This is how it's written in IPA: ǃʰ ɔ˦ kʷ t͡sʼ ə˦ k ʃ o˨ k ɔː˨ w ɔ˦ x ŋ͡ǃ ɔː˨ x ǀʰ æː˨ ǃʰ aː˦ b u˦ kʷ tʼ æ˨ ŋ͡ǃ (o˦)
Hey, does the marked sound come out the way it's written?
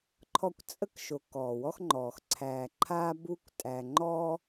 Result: no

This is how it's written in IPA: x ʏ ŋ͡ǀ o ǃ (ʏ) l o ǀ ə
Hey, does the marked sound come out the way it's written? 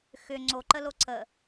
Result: no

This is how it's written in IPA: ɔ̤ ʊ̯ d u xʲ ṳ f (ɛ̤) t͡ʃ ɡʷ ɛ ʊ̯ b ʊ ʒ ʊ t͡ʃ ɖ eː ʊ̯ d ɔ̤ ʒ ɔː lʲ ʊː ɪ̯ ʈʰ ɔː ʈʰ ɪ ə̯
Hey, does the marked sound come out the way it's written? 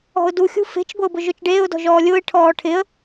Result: no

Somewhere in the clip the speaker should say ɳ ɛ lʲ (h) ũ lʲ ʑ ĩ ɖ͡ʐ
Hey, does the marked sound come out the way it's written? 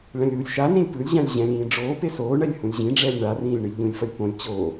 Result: yes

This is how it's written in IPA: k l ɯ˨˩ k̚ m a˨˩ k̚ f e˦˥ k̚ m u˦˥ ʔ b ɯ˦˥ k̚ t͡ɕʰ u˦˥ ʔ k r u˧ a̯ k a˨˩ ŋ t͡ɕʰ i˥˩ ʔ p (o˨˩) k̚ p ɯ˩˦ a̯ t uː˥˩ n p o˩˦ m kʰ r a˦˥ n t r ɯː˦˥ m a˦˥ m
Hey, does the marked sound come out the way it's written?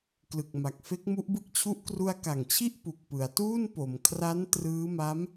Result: no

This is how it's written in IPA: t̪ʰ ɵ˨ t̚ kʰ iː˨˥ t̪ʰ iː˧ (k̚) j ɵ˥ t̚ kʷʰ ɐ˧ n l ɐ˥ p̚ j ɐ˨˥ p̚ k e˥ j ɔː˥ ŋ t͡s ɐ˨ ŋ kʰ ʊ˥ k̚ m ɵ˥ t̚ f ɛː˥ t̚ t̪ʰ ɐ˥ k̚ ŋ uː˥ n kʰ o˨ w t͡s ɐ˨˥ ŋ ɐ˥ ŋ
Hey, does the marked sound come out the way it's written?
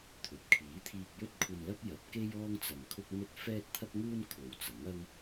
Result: yes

